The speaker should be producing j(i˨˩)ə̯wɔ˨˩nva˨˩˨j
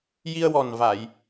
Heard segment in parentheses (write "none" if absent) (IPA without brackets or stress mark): i˧